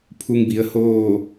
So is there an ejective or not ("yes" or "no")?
no